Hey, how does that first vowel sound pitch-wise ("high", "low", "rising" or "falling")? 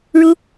high